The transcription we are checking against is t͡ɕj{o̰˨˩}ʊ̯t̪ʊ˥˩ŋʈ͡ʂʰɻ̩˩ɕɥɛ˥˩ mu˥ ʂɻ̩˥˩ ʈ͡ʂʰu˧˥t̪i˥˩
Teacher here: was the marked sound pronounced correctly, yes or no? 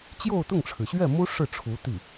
no